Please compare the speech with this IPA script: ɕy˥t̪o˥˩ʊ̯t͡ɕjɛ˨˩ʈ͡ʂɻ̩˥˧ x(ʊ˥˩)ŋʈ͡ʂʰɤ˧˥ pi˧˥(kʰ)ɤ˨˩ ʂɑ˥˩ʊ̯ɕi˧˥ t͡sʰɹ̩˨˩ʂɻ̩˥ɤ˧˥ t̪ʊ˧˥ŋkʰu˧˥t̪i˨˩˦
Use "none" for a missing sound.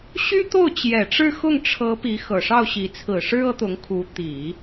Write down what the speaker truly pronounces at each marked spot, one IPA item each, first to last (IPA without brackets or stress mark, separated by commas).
ʊ˥˩, x